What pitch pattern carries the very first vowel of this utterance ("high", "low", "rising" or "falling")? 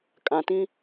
low